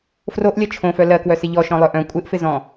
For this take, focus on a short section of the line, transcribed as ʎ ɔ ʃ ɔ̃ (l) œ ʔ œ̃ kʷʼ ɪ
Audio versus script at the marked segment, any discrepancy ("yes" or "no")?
yes